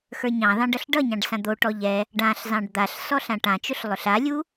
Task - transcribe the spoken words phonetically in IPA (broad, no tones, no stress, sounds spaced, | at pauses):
x ə˞ ɲ ɑ̃ ð ɑ̃ ɖ ʌ ɬ ɖ ʌ ɲ ɑ̃ ɖ s ã d̪ o ʈ ɔ ʎ ɛ | ɖ ã ɬ z ɑ̃ ɖ d̪ a ɬ s ɔ ɬ ã ʈ ã t͡ʃ ʊ ɬ lˠ ʊ ɬ a lʲ u